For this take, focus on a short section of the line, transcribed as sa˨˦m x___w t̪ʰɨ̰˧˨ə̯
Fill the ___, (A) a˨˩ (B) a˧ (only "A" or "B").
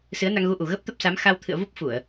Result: B